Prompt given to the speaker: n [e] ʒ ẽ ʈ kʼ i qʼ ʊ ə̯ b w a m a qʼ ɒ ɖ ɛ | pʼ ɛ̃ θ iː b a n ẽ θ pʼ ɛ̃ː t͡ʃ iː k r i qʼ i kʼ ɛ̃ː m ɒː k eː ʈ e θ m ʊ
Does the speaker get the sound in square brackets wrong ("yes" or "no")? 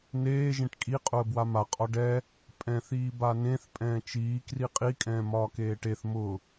yes